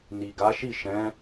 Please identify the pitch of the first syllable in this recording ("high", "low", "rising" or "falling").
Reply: low